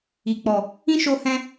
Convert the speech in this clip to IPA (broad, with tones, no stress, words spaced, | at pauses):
i˨k͡pɔ˨ | ĩ˦ʃo˧ hɛ̃˧